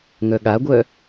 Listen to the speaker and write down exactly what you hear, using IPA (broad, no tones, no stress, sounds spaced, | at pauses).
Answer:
ŋ œ ɠ a ɡʷ œ